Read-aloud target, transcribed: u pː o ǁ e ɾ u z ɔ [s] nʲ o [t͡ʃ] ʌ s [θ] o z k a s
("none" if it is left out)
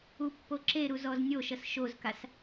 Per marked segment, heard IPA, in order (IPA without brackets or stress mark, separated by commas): z, ʃ, ʃ